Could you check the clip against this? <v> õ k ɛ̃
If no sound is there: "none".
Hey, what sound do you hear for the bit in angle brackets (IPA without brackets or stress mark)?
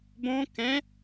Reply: b